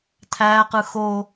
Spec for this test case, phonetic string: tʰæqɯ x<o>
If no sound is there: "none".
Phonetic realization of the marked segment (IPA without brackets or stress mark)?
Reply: o